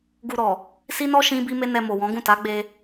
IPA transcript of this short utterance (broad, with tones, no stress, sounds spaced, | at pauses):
ɡ u˧ ɾ ɔ˨ | s i˦ n ɔ˦ ʃ ĩ˦ b i˦ m e˦ n ɛ˧ m o˨ w ɔ̃˨˦ ɡ ũ˦˨ t a˨˦ ɡ͡b e˧